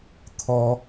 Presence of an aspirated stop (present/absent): present